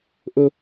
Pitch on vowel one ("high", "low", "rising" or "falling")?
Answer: high